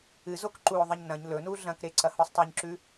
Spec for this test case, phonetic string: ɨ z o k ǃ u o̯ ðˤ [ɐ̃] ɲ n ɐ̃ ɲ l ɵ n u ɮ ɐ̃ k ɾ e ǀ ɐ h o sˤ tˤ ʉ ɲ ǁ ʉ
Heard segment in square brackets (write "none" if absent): ɐ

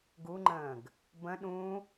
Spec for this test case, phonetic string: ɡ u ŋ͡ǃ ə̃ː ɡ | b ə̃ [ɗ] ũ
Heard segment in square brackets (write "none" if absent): ɗ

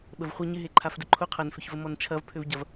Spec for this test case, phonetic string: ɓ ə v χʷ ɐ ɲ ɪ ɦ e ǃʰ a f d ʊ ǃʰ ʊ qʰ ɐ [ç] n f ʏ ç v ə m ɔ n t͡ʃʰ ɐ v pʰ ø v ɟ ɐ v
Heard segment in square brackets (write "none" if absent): none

